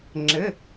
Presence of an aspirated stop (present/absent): absent